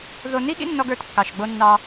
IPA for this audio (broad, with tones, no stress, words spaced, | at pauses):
ðo˦ ni˦ɠḭ˦nːɔ˧ɡ ə˞˧tkːɑ˨ʃɡ͡bo˧ nːɑ˧